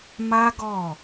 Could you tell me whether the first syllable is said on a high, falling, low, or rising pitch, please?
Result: high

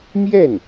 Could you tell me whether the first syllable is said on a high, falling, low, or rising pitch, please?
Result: falling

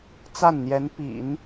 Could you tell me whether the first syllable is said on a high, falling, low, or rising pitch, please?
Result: falling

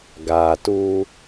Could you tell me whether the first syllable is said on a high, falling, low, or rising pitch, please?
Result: low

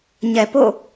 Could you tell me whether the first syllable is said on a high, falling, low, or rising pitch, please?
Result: low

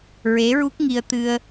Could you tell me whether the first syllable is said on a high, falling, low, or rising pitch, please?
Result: rising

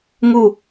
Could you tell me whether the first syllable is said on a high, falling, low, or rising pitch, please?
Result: falling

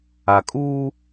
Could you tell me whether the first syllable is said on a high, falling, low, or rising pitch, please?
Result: low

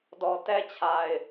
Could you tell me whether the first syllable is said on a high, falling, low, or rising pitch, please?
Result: low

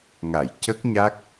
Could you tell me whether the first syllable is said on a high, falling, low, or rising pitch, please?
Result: low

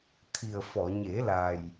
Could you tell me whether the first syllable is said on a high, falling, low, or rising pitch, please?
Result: low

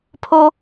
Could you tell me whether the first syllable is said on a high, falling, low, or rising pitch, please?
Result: high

